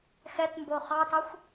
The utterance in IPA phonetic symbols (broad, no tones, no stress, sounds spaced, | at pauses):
x ɛ t m b o χ ɑ t ɑ xʷ